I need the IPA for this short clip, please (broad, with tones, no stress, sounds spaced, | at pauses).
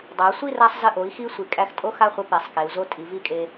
dˤ a˩˧ sʷ i˥˧ r a˧ sˤ z ə˧˩ ʔ o˩˧ i̯ x i˥ sʷ i˩˧ kʼ æ˧ x tʼ o˥ x a˥˧ χʷ ə˧ p e˩˧ sˤ k e˩˧ u̯ z o˥ tʼ i˩˧ v i˥˧ kʼ e˧